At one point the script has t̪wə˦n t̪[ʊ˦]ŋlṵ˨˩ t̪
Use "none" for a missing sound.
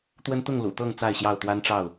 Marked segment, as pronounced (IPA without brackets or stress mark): ʊ˥˨